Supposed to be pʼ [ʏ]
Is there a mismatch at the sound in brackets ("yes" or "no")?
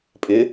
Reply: yes